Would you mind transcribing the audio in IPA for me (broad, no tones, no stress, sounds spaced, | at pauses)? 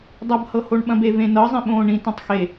dˤ ɐ b h ɤ h o ɳ ɓ ɐ̃ b e v ẽ n ɤ zˤ ĩ ɓ õː ɳ ĩ t õ tˤ x e